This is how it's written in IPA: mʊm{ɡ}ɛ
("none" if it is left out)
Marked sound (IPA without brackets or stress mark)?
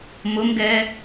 ɡ